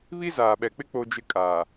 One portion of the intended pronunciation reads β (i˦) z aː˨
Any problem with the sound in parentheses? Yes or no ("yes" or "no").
no